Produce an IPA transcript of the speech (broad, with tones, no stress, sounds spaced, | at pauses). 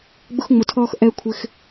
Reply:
ɡ͡b ʊ˧ x ŋ͡m ʊ˨ tʰ ɔː˧ x ʔ ɛ˦ kʷʰ ɪ˧ x